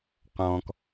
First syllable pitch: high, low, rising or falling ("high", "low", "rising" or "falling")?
low